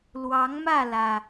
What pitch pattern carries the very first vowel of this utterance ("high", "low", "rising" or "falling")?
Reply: rising